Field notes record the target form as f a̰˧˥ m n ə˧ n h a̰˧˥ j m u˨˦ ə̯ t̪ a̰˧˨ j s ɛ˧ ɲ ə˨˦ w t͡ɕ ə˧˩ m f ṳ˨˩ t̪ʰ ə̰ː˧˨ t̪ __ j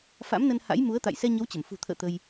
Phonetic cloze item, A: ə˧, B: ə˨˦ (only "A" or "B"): A